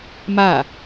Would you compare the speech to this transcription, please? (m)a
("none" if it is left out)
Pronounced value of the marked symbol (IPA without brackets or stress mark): m